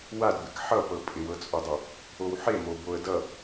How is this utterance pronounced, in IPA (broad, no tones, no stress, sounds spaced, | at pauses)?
w a d b ɪ k ħ ʌ p ɤ pʼ ɪ w ɤ t͡sʼ o dˤ ʌ | o w ħ e m o b o ə̯ d ʌ